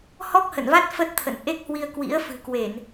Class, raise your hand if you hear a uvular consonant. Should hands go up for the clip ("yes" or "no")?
no